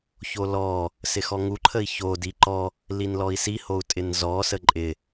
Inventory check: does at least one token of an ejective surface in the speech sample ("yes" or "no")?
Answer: yes